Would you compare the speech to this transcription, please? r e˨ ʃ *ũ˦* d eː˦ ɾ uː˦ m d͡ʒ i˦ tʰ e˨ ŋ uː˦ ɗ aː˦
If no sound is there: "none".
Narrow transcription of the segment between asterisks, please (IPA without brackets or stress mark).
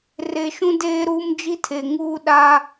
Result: ũ˦